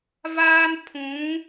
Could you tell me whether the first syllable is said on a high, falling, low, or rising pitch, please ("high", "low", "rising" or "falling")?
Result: high